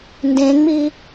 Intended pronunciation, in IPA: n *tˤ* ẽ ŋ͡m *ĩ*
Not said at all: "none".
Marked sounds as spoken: d, i

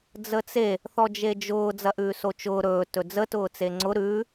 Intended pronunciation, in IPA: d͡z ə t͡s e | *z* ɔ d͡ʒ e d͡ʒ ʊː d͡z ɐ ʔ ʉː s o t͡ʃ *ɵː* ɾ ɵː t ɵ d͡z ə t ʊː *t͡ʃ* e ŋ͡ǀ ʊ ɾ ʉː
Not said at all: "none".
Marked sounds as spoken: θ, ʊː, t͡s

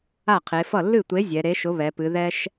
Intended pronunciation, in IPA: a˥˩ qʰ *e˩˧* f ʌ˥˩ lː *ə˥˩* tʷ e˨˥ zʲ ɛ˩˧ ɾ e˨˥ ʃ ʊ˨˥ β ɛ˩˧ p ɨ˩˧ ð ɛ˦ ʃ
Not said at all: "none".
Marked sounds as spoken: e˩˧, ɨ˥˩

